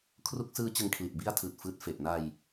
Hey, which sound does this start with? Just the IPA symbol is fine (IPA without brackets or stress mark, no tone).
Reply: kʰ